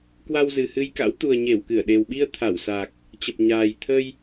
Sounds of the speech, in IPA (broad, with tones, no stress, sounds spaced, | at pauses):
k w a˧ w z ɨ˨˩ h ɨ˧ j k a̰˧˥ w t̪ u˨˩ ə̯ ɲ e˧˩ w k ɨ˧˩ ə̯ ɗ e˨˩ w ɓ i˧ ə̯ t̪ʰ a˧˩ w s a˨˩ k̚ | t͡ɕ ə˨˩ p̚ ɲ aː˨˩ j t̪ʰ ə˧ j